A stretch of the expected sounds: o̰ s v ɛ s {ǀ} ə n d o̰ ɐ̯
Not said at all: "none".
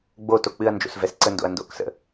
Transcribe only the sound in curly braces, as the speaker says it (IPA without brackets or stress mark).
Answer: ǀ